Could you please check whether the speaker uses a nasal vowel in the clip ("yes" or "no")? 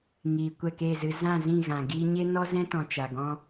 yes